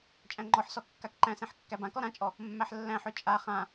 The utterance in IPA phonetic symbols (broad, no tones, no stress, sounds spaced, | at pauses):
t͡ʃʼ æ̃ ŋ͡ǃ ɔ ħ s ɔ kː a k ǃ æ̃ s ẽ ħ kː æ b ã k ɔ ɾ ã t͡ʃʼ ɔ | mː æ ħ lː æ̃ ħ ø t͡ʃʼ a χ ã